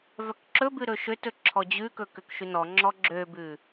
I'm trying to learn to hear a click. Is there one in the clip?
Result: yes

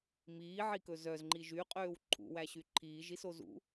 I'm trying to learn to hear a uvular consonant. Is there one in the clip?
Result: yes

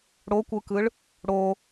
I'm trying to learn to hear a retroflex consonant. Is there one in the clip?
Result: yes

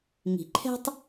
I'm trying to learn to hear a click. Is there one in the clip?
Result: yes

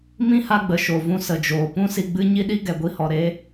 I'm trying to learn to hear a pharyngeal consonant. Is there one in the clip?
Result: no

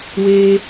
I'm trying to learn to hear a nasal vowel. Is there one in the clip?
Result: no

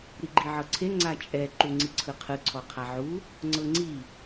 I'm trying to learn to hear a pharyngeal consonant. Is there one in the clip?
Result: yes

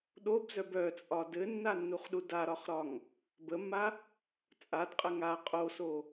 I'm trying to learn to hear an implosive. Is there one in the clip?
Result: yes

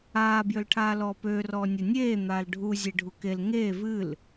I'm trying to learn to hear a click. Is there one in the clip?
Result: no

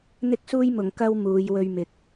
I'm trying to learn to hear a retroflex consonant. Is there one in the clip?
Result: no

